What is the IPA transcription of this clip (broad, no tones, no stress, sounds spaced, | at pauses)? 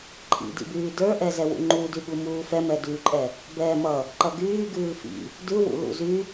ǃʼ ḭ d ḭ b yː d ə˞ ʔ ɛ z ɛ w ṵ ŋ͡ǃ u d y ɠ u m uː f ɛ m ɛ d yː ǃʼ ɛ | b ɛː m ʌ | ǃ ʌ ɡ yː ɡ ʉː f ḭ | d ʉ w ṵ l ṵ z y